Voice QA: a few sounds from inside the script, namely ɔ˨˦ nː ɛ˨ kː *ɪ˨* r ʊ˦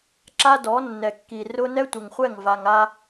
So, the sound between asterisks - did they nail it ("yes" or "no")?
no